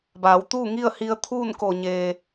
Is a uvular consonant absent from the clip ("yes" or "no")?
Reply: yes